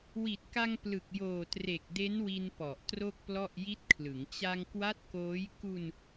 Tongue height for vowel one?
high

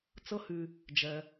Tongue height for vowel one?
mid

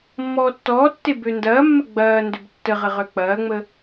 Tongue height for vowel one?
mid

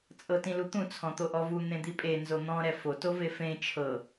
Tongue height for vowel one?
mid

